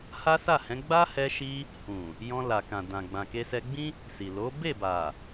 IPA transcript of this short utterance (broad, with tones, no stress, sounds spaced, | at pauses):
h a˦ s a˦˨ h ɛ̃˨˦ ɡ͡b a˦ h ɛ˧ ʃ i˧ | h ũ˨ | j ɔ̃˧ l a˨ k ã˨ d ã˨ ɡ͡b ã˨ k e˧ s ɛ˧ ɡ͡b ĩ˦ | s i˨ l o˨˦ b e˦˨ b a˨